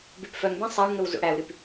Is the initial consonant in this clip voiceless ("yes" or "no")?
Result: no